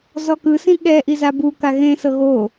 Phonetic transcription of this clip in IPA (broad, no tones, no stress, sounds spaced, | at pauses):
z ɔ k ɯ s ĩ ɠ ɛ ʔ i z a b u k a ɣ ẽ s ɤ ɣ o